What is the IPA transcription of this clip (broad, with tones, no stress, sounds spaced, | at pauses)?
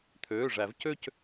t̪ʰ øː˩˧˩ ʐ æ˨˩˦ v c ø˥˧ c